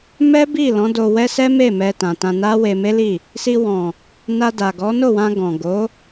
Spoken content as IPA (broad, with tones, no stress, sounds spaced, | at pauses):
m ɛ˦ b i˦˨ l ɔ̃˨˦ d o˧ w ɛ˦ s ɛ˦ m e˦˨ m ɛ˧ t ã˨ t ã˧ n a˦ w e˧ m e˦ l i˦˨ | s i˧ w ɔ̃˨ | n a˧ d a˨ ɡ ɔ˨˦ n o˦˨ w ã˧ ɡ ɔ̃˨ ɡ o˨˦